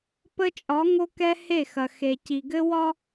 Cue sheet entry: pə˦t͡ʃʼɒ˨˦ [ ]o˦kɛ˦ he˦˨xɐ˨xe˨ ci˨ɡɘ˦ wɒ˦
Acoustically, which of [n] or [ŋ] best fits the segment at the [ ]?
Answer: ŋ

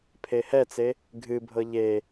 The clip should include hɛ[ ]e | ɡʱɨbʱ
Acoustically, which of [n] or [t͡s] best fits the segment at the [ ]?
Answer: t͡s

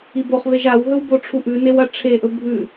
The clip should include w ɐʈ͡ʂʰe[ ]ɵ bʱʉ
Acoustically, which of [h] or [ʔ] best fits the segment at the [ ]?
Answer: ʔ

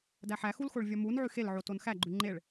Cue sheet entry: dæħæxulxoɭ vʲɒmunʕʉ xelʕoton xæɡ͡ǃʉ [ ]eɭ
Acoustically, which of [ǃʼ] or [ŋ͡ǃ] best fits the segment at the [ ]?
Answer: ŋ͡ǃ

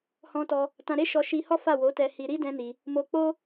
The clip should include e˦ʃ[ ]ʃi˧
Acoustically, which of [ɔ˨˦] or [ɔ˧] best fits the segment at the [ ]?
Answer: ɔ˧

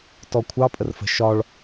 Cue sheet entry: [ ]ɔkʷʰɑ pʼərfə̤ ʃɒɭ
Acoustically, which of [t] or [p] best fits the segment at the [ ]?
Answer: t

